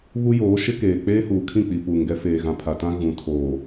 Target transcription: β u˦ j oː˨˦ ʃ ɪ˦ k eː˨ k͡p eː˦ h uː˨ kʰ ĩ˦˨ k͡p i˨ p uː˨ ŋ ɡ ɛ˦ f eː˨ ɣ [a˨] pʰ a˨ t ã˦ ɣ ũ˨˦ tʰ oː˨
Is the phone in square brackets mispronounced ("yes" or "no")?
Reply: yes